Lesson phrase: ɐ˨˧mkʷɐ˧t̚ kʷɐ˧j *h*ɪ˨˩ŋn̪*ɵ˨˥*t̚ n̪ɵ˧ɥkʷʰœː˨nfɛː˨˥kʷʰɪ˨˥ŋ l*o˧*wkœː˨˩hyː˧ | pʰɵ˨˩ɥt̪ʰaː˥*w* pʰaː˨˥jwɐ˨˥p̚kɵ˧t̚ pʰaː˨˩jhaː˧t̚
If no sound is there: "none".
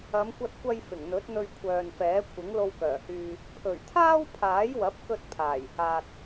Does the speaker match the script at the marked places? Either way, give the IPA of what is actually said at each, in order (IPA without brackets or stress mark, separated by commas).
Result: f, ɵ˨˥, o˧, w